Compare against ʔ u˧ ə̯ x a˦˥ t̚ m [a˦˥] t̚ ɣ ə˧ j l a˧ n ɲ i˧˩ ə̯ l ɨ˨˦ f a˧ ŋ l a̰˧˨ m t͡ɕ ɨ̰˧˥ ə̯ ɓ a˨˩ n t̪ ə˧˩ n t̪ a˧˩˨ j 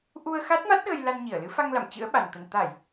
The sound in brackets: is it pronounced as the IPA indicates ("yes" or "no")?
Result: yes